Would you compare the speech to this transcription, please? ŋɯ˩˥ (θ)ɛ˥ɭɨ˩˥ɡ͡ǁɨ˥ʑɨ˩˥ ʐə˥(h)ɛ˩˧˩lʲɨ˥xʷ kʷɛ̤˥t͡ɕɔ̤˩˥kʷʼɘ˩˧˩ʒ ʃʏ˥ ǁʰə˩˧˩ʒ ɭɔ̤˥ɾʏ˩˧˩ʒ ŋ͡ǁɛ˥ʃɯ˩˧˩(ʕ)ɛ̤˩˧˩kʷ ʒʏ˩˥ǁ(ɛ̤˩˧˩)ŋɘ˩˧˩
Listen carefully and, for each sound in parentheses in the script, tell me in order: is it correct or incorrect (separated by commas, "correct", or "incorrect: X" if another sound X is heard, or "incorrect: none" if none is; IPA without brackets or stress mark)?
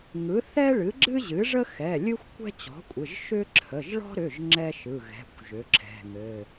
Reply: correct, incorrect: x, incorrect: ɣ, correct